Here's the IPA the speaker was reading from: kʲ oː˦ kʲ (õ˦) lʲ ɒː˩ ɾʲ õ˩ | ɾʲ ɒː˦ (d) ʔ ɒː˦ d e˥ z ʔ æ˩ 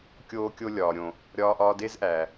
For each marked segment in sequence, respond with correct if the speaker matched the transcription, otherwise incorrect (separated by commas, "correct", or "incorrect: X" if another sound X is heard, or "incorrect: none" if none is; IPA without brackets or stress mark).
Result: incorrect: o˦, incorrect: none